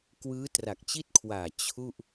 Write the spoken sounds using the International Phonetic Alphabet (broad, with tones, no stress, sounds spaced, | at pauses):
k w ɯː˦˥ t r a˨˩ k̚ t͡ɕ i˥˩ t̚ kʰ w aː˨˩ t͡ɕʰ u˥˩ ʔ